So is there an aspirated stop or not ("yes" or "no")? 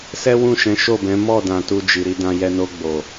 no